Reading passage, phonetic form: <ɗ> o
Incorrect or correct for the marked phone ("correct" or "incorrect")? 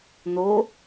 incorrect